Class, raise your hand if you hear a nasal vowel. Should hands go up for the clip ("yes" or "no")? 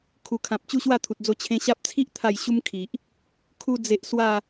yes